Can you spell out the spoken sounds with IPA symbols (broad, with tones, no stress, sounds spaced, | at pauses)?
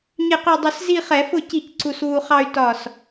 ɲ ɪ˧˩ q u˧˩ dˤ ʊ˧˩˧ s z i˥˧ χ ɛ˧˩˧ f ʊ˥˩ c i˥˩ c ǀ u˧ s w u˧ χ ɑ˥˧ y̯ t ɒ˧˩ s